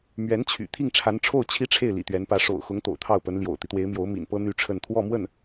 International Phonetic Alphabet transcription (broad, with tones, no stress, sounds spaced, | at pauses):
m ɥ ɛ˧˥ n t͡ɕʰ y̰˨˩ t̪ʰ i˥˩ ŋ ʈ͡ʂʰ a˧˥ n ʈ͡ʂʰ o˥˩ ʊ̯ t͡ɕʰ i˥ ʈ͡ʂʰ e˥˩ ɪ̯ l ḭ˨˩ t̪ ɥ ɛ˧˥ n p ä˧˥ ʂ o̰˨˩ ʊ̯ x ʊ˧˥ ŋ t̪ o̰˨˩ ʊ̯ t̪ʰ ɑ˥˩ ʊ̯ p ə˧˥ n l j o̰˨˩ ʊ̯ t̪ i˦ t̪ w e˧˥ ɪ̯ m j o˧˥ ʊ̯ m ḭ˨˩ n p ɤ˥ n̪ y˥ ʈ͡ʂʰ ə˥˧ n t̪ʰ w ɔ˥˧ m w ə˥˩ n